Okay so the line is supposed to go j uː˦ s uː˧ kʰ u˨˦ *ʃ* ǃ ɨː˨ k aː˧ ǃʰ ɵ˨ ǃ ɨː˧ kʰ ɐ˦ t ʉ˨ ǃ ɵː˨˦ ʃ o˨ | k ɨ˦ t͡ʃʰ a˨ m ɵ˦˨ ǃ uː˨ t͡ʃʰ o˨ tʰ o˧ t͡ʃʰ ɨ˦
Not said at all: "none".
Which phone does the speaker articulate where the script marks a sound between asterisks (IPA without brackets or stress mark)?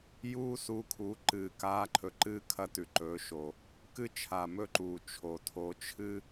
none